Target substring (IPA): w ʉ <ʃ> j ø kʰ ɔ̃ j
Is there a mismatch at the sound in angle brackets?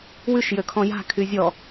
no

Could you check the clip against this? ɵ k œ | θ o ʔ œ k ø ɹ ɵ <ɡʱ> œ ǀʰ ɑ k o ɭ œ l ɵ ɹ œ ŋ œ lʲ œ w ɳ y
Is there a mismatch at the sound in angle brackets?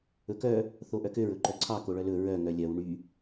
yes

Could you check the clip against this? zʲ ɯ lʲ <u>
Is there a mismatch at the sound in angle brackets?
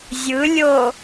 yes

